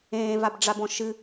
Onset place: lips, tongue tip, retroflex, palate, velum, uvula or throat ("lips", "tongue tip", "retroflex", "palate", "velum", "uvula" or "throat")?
lips